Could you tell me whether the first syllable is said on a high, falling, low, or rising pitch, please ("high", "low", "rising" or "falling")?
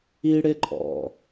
high